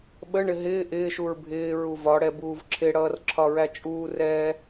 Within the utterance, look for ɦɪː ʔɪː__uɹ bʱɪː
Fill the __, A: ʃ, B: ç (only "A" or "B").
A